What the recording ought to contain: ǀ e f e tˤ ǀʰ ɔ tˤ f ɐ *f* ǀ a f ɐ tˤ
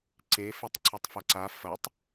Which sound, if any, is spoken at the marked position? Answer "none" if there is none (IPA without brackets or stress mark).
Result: none